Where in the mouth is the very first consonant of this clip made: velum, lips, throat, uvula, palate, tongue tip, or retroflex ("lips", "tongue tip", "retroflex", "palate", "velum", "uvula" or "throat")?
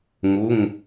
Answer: velum